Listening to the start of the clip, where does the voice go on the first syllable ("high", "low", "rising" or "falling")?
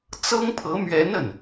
high